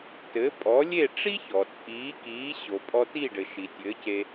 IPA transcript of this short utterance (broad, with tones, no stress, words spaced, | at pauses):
tɘ˩˥pʼɔ˩˥ lʲe˥˩ʈ͡ʂi˥çɔ˩ t͡sʼiː˩˥kiː˩˥ ɕo˩pʼɔ˧ti˥˩ɖɘ˩ ʃi˩tʲɘː˩˥ce˧